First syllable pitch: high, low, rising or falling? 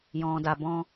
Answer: low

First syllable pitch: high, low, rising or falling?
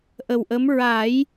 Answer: low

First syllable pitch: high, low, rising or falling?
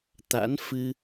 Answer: rising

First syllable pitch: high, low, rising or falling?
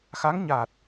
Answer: rising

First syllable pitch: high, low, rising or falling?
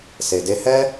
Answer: low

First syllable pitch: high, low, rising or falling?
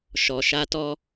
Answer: low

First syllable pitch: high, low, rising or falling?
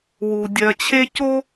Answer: low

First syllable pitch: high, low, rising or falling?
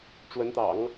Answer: rising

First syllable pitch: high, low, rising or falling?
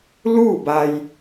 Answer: falling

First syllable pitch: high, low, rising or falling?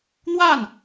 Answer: falling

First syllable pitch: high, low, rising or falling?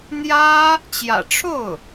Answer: high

